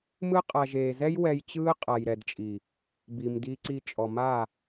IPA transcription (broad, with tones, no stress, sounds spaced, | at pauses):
m ɯ˦ qʼ a˨ ʒ eː˨ z ɛ˦ j w ɛ˧ j t͡ɕ ɯː˦ qʼ a˨ j ɾ ɛ˨ d t͡ʃʼ i˨ | b i˨ m d i˧ ǀ i˧ t͡ʃʼ ɔ˨ m a˦˨